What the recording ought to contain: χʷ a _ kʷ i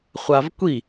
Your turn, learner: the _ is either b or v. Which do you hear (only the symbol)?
v